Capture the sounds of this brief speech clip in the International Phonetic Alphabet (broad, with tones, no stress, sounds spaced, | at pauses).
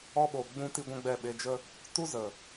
ɔ˧ ɓ o˨ ɡ͡b ũ˧ t i˦ ɡʷ ɛ̃˦ ɡ͡b ɛ˦˨ ɓ e˧ d͡ʒ ə˦ | t u˦ z ə˨